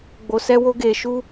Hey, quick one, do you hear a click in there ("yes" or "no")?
no